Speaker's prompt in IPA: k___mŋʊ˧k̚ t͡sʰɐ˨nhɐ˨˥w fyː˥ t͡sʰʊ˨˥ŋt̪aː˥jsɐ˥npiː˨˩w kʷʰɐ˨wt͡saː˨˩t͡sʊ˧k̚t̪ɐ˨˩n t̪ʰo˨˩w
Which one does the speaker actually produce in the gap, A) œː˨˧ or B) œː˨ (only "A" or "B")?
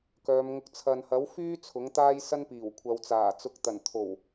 A